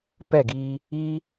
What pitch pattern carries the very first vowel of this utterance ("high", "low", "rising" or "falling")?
falling